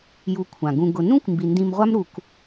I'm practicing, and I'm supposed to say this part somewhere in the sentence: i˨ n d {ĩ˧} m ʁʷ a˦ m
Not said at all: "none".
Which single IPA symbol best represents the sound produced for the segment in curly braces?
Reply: ĩ˧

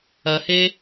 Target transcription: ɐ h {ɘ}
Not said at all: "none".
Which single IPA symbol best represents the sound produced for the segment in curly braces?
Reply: e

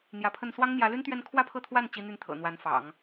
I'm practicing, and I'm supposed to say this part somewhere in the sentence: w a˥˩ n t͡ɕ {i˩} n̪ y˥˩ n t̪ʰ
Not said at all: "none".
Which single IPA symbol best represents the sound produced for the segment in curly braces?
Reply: i˥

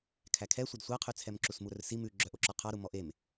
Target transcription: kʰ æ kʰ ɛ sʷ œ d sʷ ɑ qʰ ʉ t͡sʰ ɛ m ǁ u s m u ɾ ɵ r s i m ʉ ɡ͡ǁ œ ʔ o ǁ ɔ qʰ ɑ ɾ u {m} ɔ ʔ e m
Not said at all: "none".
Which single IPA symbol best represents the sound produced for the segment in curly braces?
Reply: m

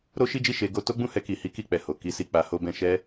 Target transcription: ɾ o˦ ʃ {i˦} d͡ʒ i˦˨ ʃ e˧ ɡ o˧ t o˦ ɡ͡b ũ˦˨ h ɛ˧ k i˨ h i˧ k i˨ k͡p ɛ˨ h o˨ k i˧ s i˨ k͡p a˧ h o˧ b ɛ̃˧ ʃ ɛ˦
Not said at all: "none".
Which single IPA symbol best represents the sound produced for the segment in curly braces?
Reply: i˦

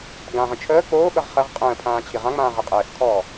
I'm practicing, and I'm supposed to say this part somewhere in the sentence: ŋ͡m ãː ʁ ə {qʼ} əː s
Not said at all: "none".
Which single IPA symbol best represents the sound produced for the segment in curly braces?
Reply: qʼ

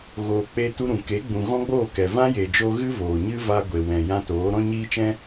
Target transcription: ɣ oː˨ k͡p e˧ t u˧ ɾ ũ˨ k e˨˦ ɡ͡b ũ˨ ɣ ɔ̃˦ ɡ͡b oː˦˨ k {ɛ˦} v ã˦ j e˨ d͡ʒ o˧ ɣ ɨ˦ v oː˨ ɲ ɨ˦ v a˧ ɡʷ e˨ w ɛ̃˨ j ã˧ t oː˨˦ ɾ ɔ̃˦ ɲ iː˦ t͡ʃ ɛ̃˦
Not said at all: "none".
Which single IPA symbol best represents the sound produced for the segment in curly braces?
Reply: ɛ˨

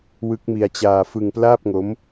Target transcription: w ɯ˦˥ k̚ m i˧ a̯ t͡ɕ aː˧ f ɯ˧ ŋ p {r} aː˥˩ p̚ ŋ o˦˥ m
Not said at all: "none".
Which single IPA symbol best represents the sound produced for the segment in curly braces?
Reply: l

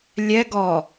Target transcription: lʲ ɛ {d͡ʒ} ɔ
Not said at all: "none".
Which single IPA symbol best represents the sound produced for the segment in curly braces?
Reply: ɡ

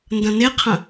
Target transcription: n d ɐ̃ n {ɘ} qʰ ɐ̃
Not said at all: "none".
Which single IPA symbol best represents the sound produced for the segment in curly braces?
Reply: e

